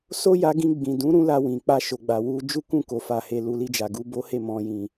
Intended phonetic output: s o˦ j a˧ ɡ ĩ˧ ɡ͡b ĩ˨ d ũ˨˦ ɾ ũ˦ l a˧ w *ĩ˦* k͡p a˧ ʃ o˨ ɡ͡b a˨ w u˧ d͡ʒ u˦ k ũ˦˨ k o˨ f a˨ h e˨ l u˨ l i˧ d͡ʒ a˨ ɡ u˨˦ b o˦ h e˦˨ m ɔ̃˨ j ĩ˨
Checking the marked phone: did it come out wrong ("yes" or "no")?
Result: yes